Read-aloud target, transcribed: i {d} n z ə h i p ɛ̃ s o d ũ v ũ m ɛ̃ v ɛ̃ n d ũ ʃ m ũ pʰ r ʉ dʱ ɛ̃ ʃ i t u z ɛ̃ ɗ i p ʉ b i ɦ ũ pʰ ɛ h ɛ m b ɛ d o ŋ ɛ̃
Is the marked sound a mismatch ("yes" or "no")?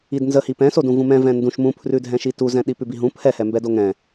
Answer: no